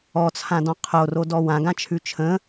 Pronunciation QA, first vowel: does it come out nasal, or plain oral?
oral